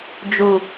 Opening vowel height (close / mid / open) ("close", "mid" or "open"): close